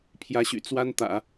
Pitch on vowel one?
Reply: rising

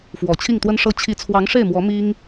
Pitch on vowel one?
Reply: low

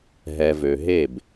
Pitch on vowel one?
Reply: low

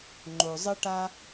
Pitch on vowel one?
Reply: low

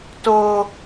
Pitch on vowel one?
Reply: high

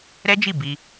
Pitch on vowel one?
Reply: high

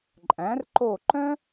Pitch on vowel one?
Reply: rising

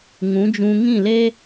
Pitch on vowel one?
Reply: rising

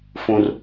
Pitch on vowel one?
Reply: high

